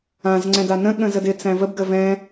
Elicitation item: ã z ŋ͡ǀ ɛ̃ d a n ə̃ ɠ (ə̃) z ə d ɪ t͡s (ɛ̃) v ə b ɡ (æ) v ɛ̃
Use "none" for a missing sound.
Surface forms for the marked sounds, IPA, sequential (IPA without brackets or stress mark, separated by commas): ə̃, æ̃, ə